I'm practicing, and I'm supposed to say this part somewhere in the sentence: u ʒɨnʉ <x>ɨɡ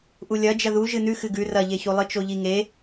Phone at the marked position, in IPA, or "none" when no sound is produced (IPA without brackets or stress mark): x